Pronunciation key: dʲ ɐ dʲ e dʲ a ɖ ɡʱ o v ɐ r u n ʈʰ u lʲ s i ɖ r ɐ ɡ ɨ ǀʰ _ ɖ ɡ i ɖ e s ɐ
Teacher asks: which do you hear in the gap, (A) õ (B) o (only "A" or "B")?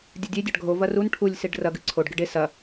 B